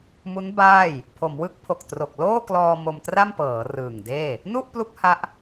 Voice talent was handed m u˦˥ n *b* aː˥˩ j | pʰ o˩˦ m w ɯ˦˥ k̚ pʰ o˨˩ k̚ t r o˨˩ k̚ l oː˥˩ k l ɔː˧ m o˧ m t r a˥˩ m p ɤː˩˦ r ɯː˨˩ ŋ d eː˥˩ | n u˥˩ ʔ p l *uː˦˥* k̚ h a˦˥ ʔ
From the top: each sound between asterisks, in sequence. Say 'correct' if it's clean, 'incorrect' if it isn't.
correct, incorrect: u˦˥

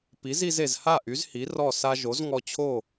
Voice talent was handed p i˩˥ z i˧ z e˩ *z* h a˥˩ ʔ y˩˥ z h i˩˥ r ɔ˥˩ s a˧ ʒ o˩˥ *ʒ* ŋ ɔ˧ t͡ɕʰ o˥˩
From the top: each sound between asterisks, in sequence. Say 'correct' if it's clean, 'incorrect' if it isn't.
correct, incorrect: z

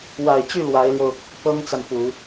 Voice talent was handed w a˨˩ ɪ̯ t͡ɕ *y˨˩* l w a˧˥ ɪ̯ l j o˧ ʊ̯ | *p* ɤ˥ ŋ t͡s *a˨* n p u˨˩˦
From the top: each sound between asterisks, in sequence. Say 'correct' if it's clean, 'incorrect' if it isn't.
incorrect: y˥˩, correct, correct

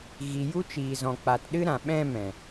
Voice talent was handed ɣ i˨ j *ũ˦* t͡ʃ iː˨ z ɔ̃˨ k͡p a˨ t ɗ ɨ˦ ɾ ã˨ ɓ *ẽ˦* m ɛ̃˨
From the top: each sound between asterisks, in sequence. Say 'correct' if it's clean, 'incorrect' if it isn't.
incorrect: u˦, incorrect: ɛ̃˦

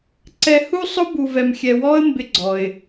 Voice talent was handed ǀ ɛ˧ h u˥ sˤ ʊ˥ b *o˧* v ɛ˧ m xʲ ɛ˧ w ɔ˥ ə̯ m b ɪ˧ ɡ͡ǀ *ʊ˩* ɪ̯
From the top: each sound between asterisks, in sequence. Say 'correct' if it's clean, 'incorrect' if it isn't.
incorrect: u˧, incorrect: ɔ˩

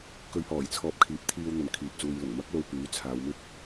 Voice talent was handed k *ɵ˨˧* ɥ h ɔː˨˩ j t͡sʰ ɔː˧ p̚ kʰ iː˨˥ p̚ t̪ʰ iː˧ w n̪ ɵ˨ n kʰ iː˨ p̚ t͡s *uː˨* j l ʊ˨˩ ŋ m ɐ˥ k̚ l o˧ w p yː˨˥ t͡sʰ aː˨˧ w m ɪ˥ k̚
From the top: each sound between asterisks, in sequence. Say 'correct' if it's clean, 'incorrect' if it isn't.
correct, correct

